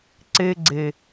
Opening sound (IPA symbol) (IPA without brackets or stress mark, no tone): ǀ